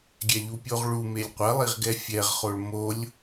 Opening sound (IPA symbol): ɡʲ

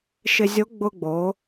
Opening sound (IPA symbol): ʃ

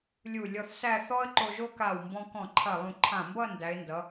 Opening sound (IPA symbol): lʲ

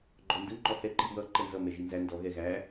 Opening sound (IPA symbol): ɡ͡ǃ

